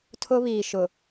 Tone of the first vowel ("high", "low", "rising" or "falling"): high